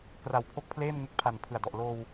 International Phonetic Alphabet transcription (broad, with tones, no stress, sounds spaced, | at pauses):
k r a˨˩ w pʰ o˥˩ k̚ pʰ l eː˥˩ m ŋ e˦˥ k̚ pʰ a˨˩ n pʰ ɯ˨˩ a̯ d ɔ˨˩ ʔ l oː˧ w